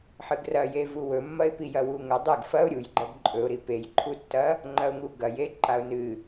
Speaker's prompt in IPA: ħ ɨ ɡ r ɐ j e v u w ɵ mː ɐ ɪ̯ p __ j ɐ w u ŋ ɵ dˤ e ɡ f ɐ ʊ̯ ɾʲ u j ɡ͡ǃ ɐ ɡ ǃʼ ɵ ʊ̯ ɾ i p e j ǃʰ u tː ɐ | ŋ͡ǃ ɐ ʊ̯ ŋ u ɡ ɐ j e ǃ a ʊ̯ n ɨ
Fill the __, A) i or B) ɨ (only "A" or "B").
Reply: A